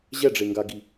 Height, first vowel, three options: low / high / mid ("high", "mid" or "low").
mid